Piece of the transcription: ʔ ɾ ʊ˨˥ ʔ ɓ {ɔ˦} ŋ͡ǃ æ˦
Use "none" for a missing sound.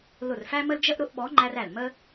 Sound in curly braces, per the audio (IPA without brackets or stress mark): ɔ˨˥